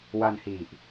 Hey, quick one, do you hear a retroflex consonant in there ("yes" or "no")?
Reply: no